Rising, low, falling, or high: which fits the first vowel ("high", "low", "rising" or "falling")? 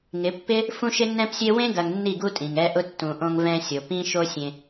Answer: rising